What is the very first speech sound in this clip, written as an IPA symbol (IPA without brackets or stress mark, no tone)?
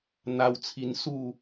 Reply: n̪